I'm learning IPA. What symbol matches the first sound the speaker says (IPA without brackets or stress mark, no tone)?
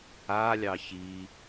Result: a